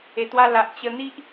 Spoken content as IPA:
e˨˩ t̪ w a˧ l a˨ ʔ t͡ɕ ə˧ n̪ i˦ ʔ

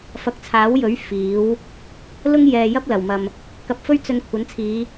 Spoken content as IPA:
f ɐ˨˥ k̚ t͡sʰ aː˨˥ w j ɵ˨˥ ɥ f iː˨˥ w | l ʊ˥ ŋ j ɛː˨ j ɐ˥ p̚ l ɐ˨˩ w m ɐ˨ m | k ɐ˧ p̚ f ɵ˥ ɥ t͡s ɵ˧ n kʷʰ ɐ˨˥ n t͡sʰ iː˨˧

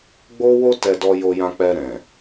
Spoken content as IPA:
ɡ͡b o˦ w o˦ t ɛ˧ d ɔ˧ j o˧ j ã˧ k͡p ɛ˧ ɾ ɛ̃˨

